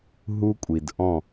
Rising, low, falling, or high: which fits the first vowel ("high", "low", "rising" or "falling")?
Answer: high